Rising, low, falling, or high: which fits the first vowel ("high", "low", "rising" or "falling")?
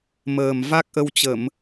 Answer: low